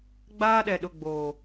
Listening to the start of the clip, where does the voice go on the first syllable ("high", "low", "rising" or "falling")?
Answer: high